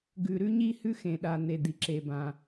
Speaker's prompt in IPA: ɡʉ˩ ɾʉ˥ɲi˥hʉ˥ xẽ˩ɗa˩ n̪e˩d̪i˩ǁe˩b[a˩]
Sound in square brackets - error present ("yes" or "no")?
yes